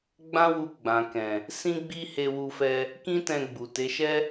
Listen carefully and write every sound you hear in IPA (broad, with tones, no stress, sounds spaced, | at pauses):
ɡ͡b ã˦ w u˧ ɡ͡b ã˨ k ɛ̃˨ | s ĩ˦ ɡ͡b i˦ h e˧ w u˧ f ɛ˧ | k ĩ˦ t ɛ̃˧ ɡ͡b u˨ t e˨˦ ʃ ɛ˦